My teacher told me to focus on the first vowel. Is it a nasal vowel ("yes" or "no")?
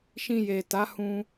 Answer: yes